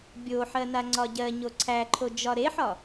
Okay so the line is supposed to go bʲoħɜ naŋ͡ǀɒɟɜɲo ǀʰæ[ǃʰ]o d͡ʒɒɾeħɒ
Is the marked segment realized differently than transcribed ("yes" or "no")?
no